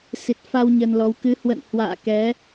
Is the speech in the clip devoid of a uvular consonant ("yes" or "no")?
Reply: yes